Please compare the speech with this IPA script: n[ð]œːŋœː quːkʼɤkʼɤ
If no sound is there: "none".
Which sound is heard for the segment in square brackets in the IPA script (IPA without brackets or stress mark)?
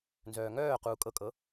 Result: z